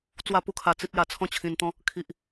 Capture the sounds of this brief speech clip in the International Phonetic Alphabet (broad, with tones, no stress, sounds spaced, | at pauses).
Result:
t͡s w a˥˧ p u˦ kʰ a˧ t͡s i˦ t̚ j a˧ t͡sʰ ɔ̃˥˧ t͡ɕʰ ĩ˧ n t̪ ɔ̃˦ | kʰ i˨ ʔ